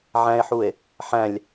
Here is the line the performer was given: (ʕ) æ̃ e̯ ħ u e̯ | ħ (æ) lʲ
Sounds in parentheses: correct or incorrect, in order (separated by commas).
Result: correct, incorrect